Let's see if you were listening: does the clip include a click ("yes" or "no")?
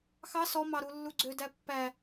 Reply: yes